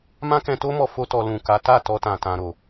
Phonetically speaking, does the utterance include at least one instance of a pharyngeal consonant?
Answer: no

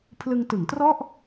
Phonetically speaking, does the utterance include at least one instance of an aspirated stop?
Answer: yes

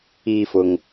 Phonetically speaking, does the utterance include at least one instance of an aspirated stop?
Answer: no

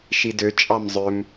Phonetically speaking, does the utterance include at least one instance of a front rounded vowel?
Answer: yes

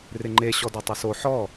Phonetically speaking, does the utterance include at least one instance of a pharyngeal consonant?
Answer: yes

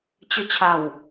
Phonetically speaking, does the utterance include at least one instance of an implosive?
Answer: no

